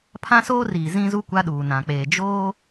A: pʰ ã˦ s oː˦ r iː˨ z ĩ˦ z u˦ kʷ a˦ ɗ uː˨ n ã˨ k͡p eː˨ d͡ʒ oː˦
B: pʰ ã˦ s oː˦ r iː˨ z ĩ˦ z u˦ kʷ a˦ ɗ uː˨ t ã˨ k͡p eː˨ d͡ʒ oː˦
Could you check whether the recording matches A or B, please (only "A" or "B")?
A